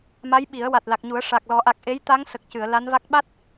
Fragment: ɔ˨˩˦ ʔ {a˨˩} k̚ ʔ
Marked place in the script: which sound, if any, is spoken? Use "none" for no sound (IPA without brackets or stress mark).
a˨˩